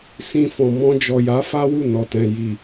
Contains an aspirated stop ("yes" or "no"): no